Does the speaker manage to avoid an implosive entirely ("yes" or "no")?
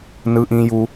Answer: yes